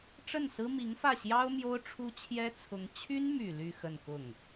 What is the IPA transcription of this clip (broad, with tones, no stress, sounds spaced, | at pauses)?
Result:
ʈ͡ʂ ə˥˩ n s ɹ̩˥ m i˧˥ ŋ f ä˥˩ ɕ j ɑ˥ ʊ̯ m j o˥ ʊ̯ ʈ͡ʂʰ u˥ t͡ɕʰ j ɛ˥ t͡sʰ ʊ˧˥ ŋ t͡ɕʰ y˥ n m y˨˩ l y˥˧ x ə˥˧ n k ʊ˥˩ ŋ